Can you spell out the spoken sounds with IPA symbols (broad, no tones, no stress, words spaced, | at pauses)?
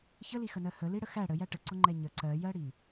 çəlixənɜ həliɽə xæ ɽəjæ ʈəǀʊŋ͡ǃɛ ɲə ǀɜjɜɽi